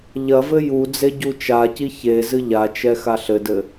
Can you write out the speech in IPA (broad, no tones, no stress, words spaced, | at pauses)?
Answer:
ʎɐvɘ ju d͡zeɟut͡ʃaci çe zɨʎat͡ʃɛ xaɬɘdɘ